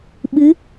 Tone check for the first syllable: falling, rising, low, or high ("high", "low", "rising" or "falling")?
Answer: rising